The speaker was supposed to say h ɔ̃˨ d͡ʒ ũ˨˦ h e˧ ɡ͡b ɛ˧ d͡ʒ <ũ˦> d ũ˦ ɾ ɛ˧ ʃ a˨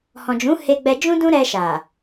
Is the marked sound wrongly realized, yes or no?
no